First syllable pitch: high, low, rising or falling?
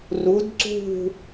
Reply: rising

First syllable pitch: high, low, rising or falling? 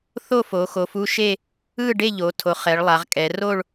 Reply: falling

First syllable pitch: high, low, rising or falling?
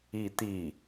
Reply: falling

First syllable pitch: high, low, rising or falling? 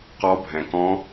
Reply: rising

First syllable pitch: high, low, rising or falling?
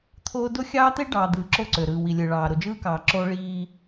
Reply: high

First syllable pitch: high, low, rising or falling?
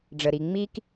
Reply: low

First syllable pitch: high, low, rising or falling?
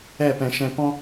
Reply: falling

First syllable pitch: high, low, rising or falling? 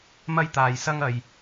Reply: high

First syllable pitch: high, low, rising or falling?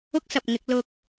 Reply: high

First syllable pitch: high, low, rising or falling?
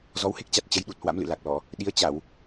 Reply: rising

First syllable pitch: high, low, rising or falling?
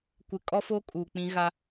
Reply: low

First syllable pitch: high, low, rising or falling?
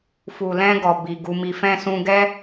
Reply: low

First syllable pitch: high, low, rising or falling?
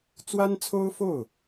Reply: high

